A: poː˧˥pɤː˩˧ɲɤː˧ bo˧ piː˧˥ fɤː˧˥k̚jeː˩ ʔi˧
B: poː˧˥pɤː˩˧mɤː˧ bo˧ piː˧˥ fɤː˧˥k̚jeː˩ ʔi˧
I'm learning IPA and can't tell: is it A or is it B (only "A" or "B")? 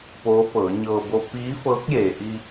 A